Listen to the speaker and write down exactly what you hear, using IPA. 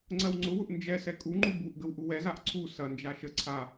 ŋ͡ǀɜwŋ͡ǀʊwʊʔ nd͡ʒɛsɛ kʼuŋ͡ǃu buʔ ɡəwʔuwɛzaʔ ǀʰu sɐnd͡ʒa ʃə ǀʰa

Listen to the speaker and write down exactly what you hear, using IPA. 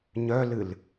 ɲœlɨl

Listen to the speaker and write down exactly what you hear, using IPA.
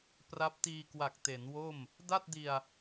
pra˦˥p̚tiː˧kwa˨˩k̚ te˩˦nwo˥˩m | da˥˩t̚di˧a̯

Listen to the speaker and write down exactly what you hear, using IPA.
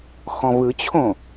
xɔ̃vɯt͡ɕʰõ

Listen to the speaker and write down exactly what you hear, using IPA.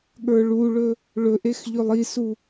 ɠə˞ɭuɭɵ | ɭɵʔex ʎɵlˠisu

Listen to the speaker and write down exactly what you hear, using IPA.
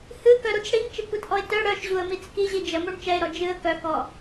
hɨkœɾut͡s ɽiŋt͡ʃɨkʷitʔɔɪ̯ tœ ɽœʃʑuə̯mit͡s kiʑi d͡ʒəmuɳ t͡ʃɛɪ̯ɾɔ d͡ʒɨə̯ kœkɔ

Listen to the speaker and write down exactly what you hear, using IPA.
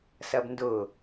sɐbndʊ

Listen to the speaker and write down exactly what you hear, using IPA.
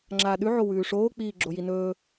ŋ͡ǁaːɗʉʕo wʉːʂoːk͡piː ɡ͡ǁojinɵː

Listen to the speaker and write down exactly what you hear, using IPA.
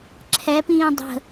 ǁʰɛpĩː dˤə̤

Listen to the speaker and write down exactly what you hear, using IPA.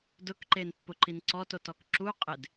dʊkǃenpːʊǃin ǀɔtotɔk ǁu qʼɪd

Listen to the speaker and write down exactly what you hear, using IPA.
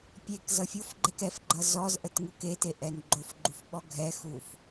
pʲek zʌfʲofɡ͡ǃɛk ɛfɡ͡ǃʌ zɔz ʔətŋukete ʔɛnɡ͡ǃofɡ͡ǃuf ɓɔɡʱɛxuf

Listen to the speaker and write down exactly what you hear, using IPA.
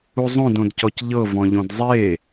uzˤõd õdcɔcʎɤ vɔ̃ʎõdzˤe

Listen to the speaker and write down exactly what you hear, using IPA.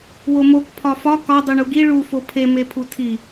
womok pʰɒfɒ kɒ dˤuɳuɡi ɭu fopʰe mepʰutʰi

